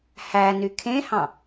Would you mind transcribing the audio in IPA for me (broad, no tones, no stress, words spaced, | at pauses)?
hæny kʰẽhɑ̃